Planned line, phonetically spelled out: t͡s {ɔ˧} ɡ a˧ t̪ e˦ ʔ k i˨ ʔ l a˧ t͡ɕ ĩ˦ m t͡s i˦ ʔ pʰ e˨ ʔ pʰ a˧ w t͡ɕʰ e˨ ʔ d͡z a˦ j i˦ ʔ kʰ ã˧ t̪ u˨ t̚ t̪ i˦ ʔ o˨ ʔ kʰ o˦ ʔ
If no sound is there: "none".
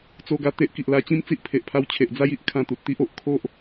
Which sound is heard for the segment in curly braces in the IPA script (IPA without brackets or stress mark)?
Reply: o˧